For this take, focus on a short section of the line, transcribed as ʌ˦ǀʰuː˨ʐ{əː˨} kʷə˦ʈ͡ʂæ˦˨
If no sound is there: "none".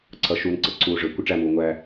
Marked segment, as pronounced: əː˨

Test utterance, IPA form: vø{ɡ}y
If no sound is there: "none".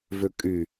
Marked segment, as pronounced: kʼ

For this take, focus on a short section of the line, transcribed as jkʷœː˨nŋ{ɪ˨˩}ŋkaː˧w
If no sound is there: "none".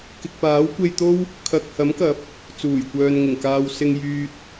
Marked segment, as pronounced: ɪ˨˩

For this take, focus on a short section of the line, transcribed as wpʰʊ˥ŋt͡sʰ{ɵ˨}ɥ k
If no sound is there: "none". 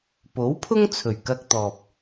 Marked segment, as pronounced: ɵ˨˩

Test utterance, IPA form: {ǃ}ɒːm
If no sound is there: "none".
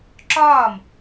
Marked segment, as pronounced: ǁ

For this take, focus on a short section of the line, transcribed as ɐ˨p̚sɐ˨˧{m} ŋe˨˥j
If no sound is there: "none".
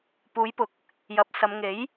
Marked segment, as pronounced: m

